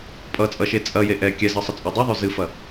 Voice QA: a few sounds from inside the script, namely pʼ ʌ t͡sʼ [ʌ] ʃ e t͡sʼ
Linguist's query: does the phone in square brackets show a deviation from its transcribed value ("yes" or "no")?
no